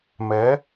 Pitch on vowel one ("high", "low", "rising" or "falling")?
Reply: rising